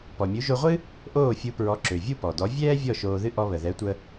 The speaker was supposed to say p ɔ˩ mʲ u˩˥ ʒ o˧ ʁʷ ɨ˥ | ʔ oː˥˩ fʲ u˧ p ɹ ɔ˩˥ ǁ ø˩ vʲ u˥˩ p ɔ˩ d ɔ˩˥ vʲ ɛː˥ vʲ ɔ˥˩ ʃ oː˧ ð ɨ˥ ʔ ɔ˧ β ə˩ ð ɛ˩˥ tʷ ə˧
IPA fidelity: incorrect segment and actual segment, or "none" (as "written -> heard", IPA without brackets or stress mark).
none